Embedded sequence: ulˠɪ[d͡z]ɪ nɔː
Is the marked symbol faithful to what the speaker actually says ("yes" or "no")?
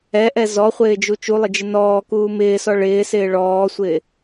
no